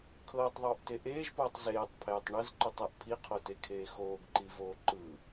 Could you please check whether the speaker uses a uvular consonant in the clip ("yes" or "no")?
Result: yes